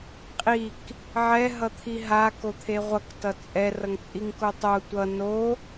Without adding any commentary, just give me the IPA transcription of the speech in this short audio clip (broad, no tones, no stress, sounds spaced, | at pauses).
qʼ i k | ʕ ɛ ɦ ʌ t̪ʰ i ɦ a k o t̪ʰ e ʁʷ ʌ k t ʌ t͡sʼ ɛ r ʌ ŋ t͡sʼ i ŋ k o tˤ o tʷ ʌ n o